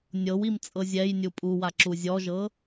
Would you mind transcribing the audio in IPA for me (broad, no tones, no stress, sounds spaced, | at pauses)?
nʲ ɤ w i m t͡sʼ ɤ zʲ ɛ j nʲ u pʼ u w a ǁ u zʲ ɔ ʒ ɤ